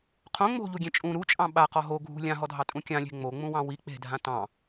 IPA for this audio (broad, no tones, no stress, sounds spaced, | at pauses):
qʰ õ ŋ͡m o̤ ʎ u ɡʲ ẽ t͡ʃʼ ũ ɾ u t͡ʃʼ ɑ̃ ɓ a q ɔ ɦ o ɡʱ ṳ lʲ ã ɦ ɔ dʱ ɑ tʼ ũ kʲ ã lʲ e̤ ŋ͡m o ŋ͡m ũ w ɑ̃ w i k͡p e̤ dʱ ã t ɑ̃